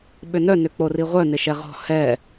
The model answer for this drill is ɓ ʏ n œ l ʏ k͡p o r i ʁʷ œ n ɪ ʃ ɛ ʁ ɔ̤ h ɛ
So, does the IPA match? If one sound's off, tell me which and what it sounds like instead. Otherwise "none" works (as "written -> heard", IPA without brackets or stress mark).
l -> n